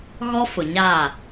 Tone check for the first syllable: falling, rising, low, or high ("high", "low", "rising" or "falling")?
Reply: high